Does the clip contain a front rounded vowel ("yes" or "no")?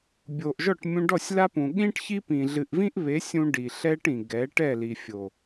no